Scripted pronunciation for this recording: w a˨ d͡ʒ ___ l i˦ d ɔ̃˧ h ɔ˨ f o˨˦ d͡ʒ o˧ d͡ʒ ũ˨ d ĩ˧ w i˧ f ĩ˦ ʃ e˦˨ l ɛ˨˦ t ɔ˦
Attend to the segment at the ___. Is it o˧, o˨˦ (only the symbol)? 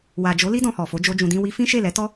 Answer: o˨˦